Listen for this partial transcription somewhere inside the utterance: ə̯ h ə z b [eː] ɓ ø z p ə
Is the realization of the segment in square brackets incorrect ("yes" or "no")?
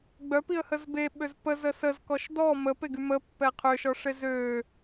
yes